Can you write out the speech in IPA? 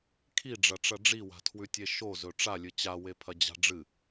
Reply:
kʰiɖ͡ʐɐʈ͡ʂɐ ɖ͡ʐiwa̤tʰwʉtʲe ʃozɵ ʈ͡ʂalʲɨ t͡ɕawepʰɐd͡ʑa̤ ɖ͡ʐɨ

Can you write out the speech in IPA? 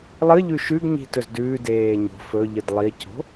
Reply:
lˠɨʎʉ ʃʉɡɲi̤tɵz dʉːdeː ɲo̤ fɵʎɨd lˠico̤

